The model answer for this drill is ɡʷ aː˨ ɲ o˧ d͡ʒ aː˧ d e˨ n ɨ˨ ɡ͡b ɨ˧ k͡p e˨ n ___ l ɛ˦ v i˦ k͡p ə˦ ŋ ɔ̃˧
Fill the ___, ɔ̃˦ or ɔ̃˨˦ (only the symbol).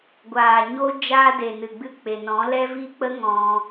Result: ɔ̃˨˦